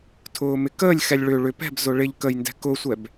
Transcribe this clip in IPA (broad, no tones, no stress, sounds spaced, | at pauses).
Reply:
tʰ ʊː m ɪ k əː lʲ x ɛ lʲ ɭ ʏ ɭ ʏ p ɛ̤ b z ʊ ɭ ɪ ʎ k ə j n d ɛ̤ k ʊ sʷ ɛ b